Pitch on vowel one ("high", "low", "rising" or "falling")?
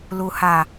low